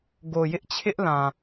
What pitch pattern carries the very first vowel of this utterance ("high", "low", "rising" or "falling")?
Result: low